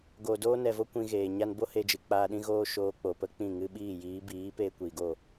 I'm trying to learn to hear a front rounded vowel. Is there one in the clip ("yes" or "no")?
no